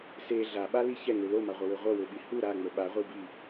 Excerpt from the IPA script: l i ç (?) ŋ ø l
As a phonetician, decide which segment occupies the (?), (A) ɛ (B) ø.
A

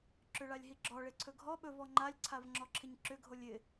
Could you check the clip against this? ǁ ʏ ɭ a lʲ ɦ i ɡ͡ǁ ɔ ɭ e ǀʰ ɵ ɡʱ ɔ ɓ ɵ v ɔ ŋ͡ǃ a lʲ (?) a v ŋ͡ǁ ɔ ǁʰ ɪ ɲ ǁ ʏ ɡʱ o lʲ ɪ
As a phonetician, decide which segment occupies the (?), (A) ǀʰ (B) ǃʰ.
A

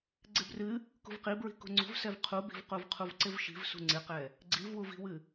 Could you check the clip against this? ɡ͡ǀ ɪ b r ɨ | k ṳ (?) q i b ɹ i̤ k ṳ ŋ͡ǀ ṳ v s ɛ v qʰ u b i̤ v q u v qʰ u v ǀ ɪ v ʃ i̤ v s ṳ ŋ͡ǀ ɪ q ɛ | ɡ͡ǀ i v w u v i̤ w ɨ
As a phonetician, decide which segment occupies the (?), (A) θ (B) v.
B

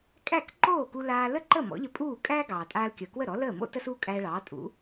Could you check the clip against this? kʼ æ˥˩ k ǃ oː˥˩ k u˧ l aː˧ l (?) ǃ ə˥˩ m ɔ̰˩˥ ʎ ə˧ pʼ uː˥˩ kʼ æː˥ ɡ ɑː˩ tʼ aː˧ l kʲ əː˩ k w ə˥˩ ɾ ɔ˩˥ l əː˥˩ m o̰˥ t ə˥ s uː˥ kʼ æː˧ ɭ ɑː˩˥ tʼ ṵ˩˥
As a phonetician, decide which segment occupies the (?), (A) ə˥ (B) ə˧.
A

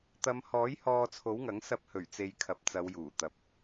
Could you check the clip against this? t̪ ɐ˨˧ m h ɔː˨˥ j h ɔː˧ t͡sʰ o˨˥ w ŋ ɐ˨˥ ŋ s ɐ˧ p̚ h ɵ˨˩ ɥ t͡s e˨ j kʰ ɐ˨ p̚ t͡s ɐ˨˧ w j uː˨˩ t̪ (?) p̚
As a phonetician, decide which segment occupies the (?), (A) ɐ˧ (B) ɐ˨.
B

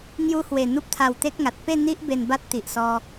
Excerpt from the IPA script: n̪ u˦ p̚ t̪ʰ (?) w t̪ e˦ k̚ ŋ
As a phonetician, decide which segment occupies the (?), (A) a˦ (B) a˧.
B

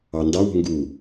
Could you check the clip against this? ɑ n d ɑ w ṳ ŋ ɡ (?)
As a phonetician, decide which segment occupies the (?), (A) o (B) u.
B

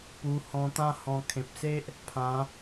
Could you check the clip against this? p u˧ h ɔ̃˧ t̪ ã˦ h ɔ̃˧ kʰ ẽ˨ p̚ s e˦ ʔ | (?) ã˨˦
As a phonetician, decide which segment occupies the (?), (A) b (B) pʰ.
B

